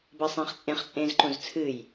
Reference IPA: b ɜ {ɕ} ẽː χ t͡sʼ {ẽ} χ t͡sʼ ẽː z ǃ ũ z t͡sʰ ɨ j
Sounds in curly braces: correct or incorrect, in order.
incorrect: sˤ, correct

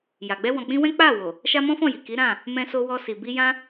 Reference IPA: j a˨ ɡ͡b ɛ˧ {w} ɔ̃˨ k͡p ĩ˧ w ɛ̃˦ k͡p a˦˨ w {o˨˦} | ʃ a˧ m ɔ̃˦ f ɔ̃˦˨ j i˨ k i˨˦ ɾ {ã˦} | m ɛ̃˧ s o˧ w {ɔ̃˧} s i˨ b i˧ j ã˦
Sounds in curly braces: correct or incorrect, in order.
correct, incorrect: o˨, incorrect: ã˦˨, incorrect: ɔ˧

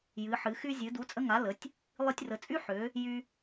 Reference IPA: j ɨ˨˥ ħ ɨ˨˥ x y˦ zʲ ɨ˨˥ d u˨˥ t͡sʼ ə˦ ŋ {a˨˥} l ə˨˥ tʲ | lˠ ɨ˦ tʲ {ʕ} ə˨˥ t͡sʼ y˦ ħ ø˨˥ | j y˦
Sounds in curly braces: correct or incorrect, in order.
correct, incorrect: r

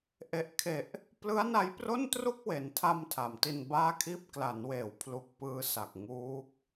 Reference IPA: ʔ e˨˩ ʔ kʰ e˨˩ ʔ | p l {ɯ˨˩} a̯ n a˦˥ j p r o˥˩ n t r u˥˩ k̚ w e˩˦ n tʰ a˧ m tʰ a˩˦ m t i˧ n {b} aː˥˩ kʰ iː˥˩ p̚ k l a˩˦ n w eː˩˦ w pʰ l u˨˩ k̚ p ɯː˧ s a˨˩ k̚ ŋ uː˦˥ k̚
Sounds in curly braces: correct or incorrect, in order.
incorrect: ɯ˦˥, correct

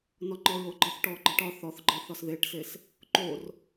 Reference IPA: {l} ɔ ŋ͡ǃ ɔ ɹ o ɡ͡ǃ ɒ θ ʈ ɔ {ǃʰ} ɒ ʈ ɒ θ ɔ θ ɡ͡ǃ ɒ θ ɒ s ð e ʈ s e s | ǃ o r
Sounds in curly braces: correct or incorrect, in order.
incorrect: n, incorrect: ɡ͡ǃ

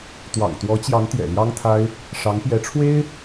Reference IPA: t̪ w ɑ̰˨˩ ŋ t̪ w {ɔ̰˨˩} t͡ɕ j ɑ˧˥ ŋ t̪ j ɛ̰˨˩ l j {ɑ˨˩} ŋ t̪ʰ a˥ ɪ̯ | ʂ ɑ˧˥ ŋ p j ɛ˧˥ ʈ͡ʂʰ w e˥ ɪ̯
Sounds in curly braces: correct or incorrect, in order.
incorrect: ɔ˧˥, incorrect: ɑ˥

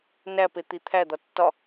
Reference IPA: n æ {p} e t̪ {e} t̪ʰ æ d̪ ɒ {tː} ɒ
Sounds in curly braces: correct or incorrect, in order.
correct, incorrect: i, correct

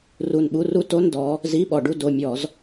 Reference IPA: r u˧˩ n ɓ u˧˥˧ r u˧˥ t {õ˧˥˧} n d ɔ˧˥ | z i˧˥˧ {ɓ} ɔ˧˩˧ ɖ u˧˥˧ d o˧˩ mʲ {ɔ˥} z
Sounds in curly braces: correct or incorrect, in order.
incorrect: o˧˥˧, correct, incorrect: ɔ˧˩˧

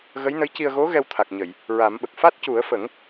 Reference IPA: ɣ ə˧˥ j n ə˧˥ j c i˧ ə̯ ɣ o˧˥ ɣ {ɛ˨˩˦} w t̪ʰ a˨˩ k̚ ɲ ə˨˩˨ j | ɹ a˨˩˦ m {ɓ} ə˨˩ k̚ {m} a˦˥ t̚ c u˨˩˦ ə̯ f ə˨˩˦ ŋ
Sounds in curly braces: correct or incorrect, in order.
incorrect: ɛ˧, correct, incorrect: f

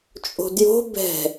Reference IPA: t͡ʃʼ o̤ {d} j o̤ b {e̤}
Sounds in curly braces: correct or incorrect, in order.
correct, incorrect: ɛ̤

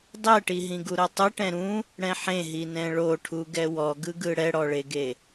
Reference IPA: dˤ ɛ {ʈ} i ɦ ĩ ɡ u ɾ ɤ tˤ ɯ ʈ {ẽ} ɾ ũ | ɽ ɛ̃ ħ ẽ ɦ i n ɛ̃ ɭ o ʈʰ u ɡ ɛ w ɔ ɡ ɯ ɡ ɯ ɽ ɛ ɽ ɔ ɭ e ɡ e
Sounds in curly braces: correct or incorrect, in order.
correct, incorrect: ɛ̃

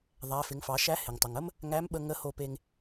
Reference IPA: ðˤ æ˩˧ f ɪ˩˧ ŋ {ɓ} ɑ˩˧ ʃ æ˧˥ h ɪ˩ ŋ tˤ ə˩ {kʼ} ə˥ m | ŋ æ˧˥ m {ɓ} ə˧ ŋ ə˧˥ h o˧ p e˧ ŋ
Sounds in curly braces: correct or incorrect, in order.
incorrect: f, incorrect: ŋ, correct

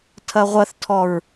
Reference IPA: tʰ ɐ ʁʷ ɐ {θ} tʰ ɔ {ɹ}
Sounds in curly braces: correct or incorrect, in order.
correct, correct

